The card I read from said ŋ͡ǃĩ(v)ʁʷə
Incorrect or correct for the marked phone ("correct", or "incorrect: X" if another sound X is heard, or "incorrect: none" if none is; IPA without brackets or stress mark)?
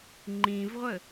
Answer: correct